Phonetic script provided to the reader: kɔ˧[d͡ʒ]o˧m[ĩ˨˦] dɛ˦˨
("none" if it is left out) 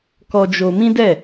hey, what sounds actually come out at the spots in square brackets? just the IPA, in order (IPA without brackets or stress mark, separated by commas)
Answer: d͡ʒ, ĩ˦